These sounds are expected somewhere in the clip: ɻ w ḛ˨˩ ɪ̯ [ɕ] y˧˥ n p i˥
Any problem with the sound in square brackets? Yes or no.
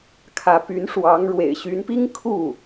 no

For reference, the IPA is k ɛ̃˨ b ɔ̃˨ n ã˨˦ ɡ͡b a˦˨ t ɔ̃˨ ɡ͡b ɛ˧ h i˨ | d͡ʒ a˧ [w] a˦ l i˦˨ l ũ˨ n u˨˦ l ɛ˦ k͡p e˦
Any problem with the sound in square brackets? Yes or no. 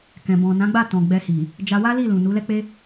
no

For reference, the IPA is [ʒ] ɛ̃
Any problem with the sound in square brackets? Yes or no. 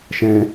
yes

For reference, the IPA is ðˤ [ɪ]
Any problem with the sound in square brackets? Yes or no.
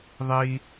yes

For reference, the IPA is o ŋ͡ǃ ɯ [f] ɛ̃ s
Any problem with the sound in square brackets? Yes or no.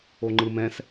yes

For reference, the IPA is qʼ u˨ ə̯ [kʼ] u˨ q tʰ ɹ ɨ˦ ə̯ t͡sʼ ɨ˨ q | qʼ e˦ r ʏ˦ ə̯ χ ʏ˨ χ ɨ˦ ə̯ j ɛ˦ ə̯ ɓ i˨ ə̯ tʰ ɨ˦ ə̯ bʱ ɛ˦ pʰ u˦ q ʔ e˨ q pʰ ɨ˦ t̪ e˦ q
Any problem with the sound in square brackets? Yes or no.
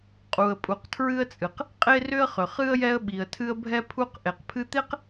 yes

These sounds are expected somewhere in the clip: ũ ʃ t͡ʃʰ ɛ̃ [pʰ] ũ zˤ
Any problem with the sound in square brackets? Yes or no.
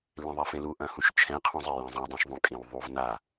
yes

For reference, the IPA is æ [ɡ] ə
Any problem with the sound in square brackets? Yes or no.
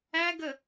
no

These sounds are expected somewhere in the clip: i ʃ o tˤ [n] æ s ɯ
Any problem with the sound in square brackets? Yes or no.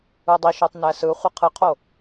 no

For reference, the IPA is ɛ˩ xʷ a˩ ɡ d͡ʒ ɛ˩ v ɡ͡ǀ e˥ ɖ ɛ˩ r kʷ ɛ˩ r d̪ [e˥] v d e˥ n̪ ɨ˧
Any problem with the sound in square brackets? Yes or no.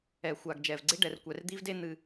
yes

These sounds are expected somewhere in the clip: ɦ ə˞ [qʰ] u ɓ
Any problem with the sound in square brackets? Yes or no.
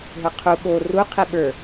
no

